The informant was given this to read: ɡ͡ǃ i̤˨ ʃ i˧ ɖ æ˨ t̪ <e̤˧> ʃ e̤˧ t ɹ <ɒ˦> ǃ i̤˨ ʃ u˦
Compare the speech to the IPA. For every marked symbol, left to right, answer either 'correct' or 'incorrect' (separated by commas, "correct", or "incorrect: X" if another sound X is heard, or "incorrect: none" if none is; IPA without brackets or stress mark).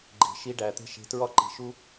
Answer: correct, correct